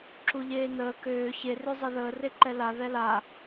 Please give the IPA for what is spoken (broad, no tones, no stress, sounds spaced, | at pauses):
ǁ u ʎ eː n əː k øː ç e r ø zˤ e ð əː r e ǃ ɛ l a ð ɛ l a